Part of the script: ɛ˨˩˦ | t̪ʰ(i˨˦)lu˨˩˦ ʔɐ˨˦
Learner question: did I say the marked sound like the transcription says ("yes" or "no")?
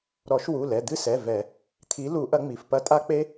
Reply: yes